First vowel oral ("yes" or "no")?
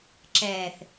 yes